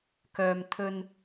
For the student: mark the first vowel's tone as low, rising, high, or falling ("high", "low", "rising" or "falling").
low